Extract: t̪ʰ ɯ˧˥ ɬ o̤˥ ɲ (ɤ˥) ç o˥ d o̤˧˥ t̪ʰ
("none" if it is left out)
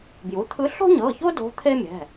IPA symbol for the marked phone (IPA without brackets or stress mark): ɤ˩˧˩